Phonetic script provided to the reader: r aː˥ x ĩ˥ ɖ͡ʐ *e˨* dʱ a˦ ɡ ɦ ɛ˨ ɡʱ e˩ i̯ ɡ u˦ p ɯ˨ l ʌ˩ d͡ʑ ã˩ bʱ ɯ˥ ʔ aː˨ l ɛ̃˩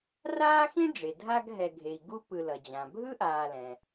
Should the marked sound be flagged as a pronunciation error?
yes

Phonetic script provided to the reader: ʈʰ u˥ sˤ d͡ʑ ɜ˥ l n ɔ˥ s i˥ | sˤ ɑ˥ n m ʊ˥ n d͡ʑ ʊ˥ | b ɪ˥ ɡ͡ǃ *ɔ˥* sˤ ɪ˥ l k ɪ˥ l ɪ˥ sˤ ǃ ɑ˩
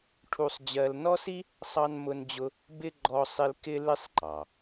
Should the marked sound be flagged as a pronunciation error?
no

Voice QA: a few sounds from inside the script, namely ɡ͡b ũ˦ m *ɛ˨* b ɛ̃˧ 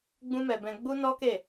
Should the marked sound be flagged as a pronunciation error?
yes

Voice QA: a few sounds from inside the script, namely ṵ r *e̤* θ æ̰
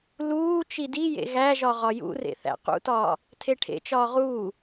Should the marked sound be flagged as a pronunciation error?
yes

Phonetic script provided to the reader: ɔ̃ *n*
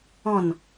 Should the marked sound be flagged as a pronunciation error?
no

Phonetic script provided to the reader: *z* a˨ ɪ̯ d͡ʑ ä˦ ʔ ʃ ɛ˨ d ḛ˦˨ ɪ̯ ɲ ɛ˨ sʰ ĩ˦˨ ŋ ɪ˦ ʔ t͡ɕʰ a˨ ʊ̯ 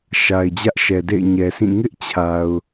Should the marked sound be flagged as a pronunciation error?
yes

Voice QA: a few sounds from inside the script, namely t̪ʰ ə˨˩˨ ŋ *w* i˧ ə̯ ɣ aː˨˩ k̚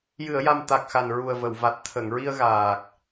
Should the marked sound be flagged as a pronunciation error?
yes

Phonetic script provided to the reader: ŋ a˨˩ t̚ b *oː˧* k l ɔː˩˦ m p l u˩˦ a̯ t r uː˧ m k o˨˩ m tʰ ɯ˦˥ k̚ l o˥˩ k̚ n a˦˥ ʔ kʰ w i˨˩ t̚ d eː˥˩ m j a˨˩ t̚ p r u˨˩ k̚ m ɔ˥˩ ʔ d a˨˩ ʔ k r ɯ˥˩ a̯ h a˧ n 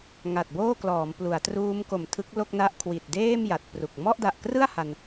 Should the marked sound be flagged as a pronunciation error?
yes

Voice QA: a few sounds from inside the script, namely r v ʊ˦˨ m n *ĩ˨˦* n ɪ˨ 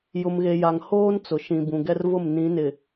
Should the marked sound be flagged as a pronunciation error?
no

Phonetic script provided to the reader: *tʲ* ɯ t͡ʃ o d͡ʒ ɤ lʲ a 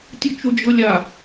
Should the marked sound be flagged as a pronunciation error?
no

